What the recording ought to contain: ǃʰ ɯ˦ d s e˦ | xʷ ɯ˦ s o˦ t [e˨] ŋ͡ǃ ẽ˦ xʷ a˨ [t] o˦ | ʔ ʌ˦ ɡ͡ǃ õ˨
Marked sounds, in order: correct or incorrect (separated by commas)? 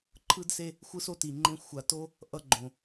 incorrect, correct